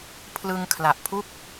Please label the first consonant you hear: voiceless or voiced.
voiceless